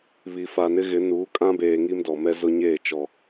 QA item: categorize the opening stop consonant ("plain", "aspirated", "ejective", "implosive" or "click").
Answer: ejective